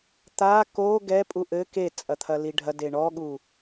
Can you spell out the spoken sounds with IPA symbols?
t̪a ko ɡɛpʼu ʔɘ ket͡sʼɐ t̪ʰɐliɖʱɐde ɳɔɠu

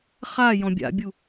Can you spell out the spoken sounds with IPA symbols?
χa jɔ̃bʲa̰bʲu

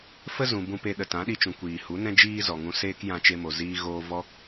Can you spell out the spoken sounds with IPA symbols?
fə˦zũ˨ bũ˧pe˧ ɗə˨tã˨˦ɗi˧t͡ʃũ˨ kʷiː˨hu˨˦nɛ̃˦ d͡ʒiː˦zɔ˨ŋũ˧ seː˦kjã˧t͡ʃe˧mo˨ ziː˧ɣoː˧ vɔ˧

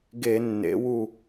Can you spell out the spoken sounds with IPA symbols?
ɡe˧˩˧ nːḛ˩˧wu˧˩

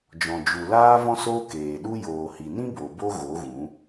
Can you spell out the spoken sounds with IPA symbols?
d͡ʒɔ̃˨d͡ʒu˨laː˦vɔ̃˦ soː˦keː˨ ɗu˧ joː˨hi˨nĩ˦ bo˨bo˦ ɣo˨˦ɣũ˨˦

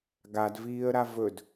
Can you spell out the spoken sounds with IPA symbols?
ɡadviːə̯ɾa vɵd

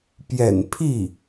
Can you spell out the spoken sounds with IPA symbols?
pjɛ̰˨˩npʰi˥˩

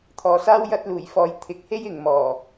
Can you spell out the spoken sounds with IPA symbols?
t̪ʰɔː˨saː˥w jɐ˧t̚luː˨˩jfɔː˨j t̪ʰɪ˨˥k̚he˥j ɪ˨ŋmɔː˨˩

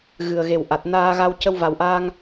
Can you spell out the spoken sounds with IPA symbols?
ɣɨ˨˩ə̯ɣe˨˩w ʔa˨˩t̚naː˧ɣa˧w cə˧wva˨˩wʔaː˧ŋ

